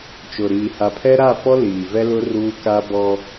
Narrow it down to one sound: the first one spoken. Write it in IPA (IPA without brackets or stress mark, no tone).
t͡ʃ